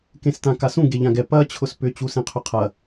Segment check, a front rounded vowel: present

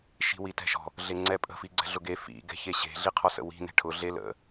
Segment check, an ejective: present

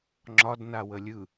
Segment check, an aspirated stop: absent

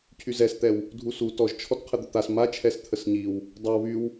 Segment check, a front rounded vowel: present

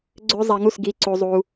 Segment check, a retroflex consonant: absent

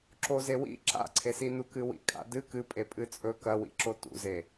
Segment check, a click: present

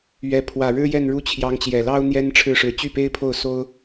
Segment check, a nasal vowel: absent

